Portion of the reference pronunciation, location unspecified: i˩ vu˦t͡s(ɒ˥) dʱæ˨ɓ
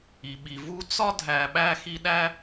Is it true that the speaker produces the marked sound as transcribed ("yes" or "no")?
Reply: yes